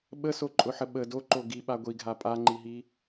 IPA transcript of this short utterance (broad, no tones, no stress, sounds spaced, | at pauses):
ɓ ə s o ǃʼ ʊ ħ ə ɓ ə d o ǃ o ɡ i ɓ a ɡʷ i ɡʱ a pʼ a ŋ͡ǃ i ɦ i